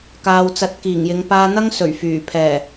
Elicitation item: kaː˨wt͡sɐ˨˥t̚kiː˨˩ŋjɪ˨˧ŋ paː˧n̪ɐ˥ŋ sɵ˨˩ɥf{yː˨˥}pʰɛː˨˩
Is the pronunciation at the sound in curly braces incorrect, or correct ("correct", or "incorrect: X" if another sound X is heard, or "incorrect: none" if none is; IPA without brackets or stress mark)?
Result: incorrect: yː˨˩